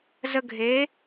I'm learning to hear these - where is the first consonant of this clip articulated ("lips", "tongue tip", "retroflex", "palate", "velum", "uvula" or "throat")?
tongue tip